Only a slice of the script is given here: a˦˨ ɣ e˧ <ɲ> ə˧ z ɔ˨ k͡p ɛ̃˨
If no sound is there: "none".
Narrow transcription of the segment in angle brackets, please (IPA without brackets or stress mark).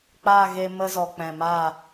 m